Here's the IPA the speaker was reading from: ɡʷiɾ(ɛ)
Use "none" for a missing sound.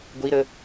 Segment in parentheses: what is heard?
ə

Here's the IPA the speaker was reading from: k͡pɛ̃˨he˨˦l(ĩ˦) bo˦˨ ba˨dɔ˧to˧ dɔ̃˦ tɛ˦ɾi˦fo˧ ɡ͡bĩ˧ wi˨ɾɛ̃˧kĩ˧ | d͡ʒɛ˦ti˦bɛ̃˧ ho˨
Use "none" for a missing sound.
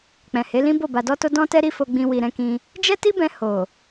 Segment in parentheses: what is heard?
ĩ˦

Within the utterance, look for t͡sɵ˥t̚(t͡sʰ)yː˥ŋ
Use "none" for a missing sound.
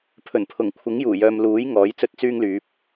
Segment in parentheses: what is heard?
t͡s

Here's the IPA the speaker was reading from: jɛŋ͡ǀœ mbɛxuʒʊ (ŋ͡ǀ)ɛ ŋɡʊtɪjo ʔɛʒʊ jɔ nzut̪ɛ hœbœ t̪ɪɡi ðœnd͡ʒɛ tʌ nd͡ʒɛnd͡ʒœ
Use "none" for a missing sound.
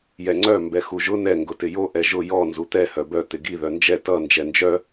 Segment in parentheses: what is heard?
n̪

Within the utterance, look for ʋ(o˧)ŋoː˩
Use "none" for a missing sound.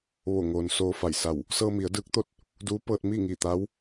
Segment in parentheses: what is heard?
o˧˩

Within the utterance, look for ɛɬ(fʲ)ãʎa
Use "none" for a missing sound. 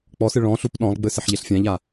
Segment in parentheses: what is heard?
fʲ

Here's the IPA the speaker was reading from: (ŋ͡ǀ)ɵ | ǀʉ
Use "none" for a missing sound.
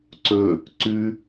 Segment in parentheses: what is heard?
ǀ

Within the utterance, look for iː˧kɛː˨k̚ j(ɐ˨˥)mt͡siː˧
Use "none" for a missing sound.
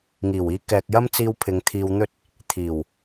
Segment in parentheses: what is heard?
ɐ˥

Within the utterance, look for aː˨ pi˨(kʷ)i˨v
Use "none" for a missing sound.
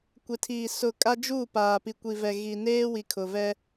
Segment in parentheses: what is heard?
kʷ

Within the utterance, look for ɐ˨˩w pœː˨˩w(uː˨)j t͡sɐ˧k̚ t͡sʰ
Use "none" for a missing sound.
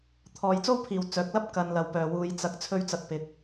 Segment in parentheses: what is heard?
uː˨˧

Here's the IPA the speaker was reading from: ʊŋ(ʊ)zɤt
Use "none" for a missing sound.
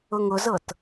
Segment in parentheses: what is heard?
ʊ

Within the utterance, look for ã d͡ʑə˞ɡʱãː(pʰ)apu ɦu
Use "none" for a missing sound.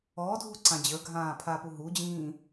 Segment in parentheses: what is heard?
pʰ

